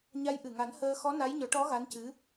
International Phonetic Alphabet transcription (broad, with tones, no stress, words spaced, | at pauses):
ɲa˧˥jʔɨ˨˩ŋa˨˩˦n həː˧ xɔ˧˥na˧˥jɲɔ˨˩˦ʈɔ˧˥ ɣa˧˥ncɨ˧˥